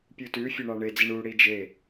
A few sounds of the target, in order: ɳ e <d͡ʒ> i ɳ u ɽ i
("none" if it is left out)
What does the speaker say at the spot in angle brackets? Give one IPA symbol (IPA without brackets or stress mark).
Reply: d͡z